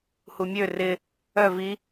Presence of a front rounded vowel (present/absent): present